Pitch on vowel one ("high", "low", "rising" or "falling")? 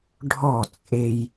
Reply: falling